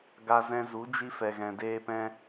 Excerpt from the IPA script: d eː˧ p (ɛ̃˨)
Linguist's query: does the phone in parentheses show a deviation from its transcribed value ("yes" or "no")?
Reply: yes